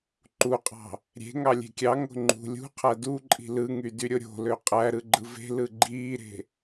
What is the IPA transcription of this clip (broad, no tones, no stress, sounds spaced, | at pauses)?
ǃ u qʼ ɑ̤ | ɾʲ e̤ ŋ ɑ lʲ e̤ kʲ ɑ ŋ o̤ ŋ͡ǃ ṳ lʲ ṳ qʰ æ d u ǃʼ i̤ l ɯ ŋ y d y ɾʲ o ɾʲ o̤ l ø qʼ æ ɾ ɯ ɡ͡ǃ ɯ v e̤ l ɯ ɡ͡ǃ iː ɾ e̤